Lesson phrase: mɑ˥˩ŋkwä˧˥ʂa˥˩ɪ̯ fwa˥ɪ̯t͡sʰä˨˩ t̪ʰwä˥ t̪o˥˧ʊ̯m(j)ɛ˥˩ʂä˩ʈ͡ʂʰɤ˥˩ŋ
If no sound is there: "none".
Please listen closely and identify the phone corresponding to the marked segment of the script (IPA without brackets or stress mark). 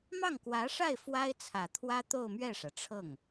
ɥ